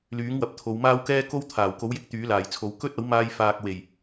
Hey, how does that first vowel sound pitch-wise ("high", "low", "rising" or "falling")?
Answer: rising